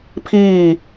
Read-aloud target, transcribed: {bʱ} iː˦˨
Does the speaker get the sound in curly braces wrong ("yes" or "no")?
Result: yes